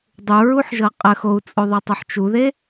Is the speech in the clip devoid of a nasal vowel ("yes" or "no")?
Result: yes